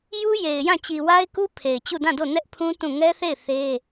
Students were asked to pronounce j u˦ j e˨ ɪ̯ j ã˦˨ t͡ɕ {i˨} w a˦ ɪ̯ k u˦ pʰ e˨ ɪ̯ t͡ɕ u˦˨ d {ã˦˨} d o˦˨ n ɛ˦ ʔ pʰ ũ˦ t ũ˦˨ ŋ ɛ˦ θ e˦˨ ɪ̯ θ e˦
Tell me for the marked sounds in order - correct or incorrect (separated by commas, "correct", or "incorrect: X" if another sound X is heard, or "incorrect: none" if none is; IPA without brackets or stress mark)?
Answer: correct, correct